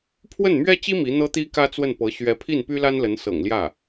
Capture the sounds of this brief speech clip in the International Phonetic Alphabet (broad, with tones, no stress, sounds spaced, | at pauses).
pʰ w ə˥˩ n m ɥ ɛ˥ t͡ɕ i˥ m i˧˥ n̪ ɤ˥ t̪ i˥ k ä˥ t͡s w ə˥˩ n p ɤ˧˥ ɕ ɥ ɛ˧˥ pʰ i˥˩ n p y˥ l a˥ n l ə˧˥ n s ɤ̰˨˩ ŋ l j ä˥˩